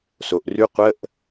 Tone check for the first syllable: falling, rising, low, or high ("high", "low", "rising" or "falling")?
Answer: low